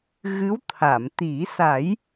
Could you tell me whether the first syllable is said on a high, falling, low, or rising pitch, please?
rising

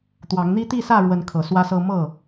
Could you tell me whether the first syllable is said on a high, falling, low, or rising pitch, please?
rising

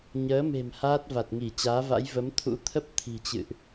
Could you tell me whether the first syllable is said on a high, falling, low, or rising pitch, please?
rising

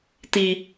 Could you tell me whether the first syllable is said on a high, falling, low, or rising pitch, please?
low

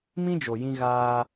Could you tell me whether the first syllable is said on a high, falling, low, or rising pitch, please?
high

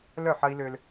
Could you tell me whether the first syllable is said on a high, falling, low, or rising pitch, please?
falling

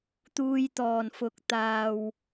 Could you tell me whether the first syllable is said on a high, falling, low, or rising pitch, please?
low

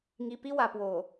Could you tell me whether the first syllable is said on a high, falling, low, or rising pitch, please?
low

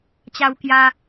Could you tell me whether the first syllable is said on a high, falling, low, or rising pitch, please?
high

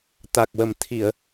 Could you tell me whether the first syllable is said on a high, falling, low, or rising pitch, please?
low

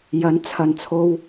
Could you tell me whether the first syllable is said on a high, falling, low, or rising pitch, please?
rising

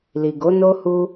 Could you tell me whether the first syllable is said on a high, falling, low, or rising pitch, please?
low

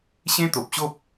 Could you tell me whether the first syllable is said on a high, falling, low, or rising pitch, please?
high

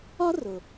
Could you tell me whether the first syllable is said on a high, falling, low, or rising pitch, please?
high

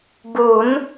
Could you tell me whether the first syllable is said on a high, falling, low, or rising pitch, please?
rising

